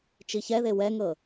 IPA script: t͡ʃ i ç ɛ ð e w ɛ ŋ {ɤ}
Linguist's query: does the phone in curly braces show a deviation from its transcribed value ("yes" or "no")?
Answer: no